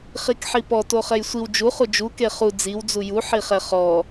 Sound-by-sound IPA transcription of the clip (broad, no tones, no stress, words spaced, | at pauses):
χikħipɔ toχɛjsʷiw d͡ʒu χud͡ʒu keχu d͡ziw d͡zuju ħiχɛχɔ